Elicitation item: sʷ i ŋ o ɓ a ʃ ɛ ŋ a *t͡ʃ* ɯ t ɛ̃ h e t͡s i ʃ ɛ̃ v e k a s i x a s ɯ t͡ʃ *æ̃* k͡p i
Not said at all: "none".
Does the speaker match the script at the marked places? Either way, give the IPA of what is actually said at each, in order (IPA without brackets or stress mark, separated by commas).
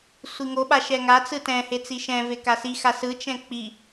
t͡s, ɛ̃